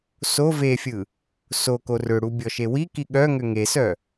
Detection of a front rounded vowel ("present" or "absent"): present